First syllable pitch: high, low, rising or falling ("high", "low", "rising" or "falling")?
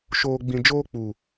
low